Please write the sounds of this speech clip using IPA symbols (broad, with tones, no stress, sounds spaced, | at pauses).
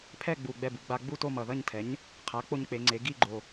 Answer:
pʰ ɛ˥˧ ɡ͡b u˨˩ ɡ͡b ɛ˥˧ b u˩˥ ɡ͡b a˧ ɡ͡b u˥˧ t o˥˧ m ʌ˨˩ ð ʌ˥˧ ɲ tʰ ɛ˩˥ ɲ | qʰ a˩˥ k͡p o˧ ɲ k͡p e˩˧ ŋ͡ǀ e˩˧ ɡ i˥˧ ɡ͡ǃ o˨˩